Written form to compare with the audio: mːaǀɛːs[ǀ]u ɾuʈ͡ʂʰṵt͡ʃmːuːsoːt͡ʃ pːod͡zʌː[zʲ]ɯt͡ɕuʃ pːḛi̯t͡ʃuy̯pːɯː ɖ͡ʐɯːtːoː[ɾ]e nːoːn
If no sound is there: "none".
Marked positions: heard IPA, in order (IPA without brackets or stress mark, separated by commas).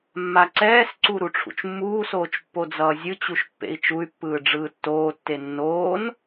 ǀ, zʲ, tː